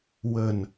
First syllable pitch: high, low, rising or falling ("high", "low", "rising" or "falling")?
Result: low